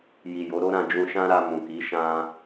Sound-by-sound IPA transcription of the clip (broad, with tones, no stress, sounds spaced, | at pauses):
j i˨ j o˨˦ ɾ o˦ ɾ ã˧ d͡ʒ ũ˧ ʃ ã˦ ɾ a˧ m ũ˨ k i˨˦ ʃ ã˦